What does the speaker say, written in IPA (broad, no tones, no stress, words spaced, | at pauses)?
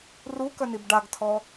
rukœnib ɖaɡtʰɔ